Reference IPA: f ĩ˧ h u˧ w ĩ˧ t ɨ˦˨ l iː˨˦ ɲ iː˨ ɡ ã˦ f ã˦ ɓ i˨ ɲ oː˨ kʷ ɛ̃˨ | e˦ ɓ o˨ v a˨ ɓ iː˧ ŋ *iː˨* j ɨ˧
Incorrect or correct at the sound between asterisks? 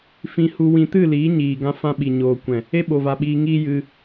incorrect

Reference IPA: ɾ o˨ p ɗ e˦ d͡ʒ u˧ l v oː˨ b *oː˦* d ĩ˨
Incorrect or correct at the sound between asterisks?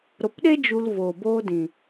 correct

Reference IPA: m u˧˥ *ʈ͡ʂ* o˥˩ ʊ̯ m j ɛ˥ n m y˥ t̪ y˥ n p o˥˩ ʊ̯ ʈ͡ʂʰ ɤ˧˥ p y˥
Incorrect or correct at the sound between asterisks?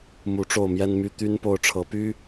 correct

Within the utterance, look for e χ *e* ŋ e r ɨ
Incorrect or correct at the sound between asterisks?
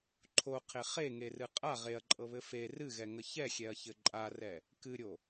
correct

